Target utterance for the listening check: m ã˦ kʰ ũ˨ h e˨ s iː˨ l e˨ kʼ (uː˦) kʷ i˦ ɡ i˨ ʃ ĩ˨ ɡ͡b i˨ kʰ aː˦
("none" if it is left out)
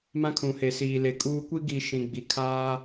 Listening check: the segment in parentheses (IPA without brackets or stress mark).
uː˦